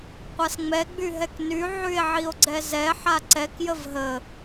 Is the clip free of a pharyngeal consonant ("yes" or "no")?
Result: no